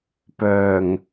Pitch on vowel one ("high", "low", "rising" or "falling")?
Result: low